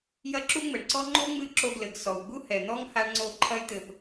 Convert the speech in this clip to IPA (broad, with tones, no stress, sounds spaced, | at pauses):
j ɐ˦ ǁ u˦ ŋ͡m ɘ˨ ɳ ǀ ɔ˦ ŋ͡ǃ o˦ ŋ͡m ɨ˧ ǁ o˧ ɡ l ɘ˨ ɡ s ɔ˨ w ɡ͡b u˦ h ɛ˨ n̪ ɔ˦ ŋ h a˧ ɳ ŋ͡ǀ o˧ ǃʰ ɐ˧ j t̪ ɘ˨ p